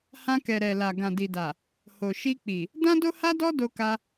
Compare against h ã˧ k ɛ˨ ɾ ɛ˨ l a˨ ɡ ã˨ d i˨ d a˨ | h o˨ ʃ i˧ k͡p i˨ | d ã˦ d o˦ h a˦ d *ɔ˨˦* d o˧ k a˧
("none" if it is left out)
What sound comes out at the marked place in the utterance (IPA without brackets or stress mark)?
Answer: ɔ˦